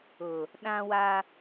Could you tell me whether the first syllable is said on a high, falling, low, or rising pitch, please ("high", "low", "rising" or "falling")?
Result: low